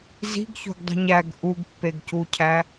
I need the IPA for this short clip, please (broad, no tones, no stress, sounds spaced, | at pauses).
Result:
z i̤ ɡ ç o̤ ɡ dˤ i̤ ɲ æ ɡ ʔ u ɡ pː e ɡ c u cʰ æ